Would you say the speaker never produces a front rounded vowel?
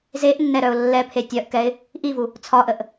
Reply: no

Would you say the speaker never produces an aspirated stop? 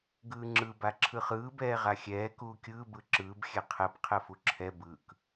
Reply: no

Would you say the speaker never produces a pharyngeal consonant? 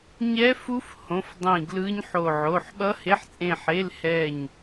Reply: no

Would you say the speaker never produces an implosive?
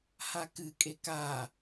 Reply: yes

